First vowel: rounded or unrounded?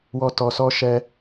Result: rounded